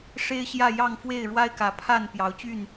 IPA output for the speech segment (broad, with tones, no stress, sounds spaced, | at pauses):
ʂ e˦ ɪ̯ ɕ j ä˥˨ j ɑ˥˨ ŋ f w e˥˨ ɪ̯ ɻ w a˦ ɪ̯ k ä˨˦ pʰ a˥˨ n p j ɑ˨˦ ʊ̯ t͡ɕ y˥˨ n